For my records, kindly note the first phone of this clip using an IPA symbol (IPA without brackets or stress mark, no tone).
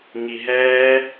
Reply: ŋ